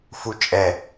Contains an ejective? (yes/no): yes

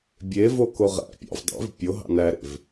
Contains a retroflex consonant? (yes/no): no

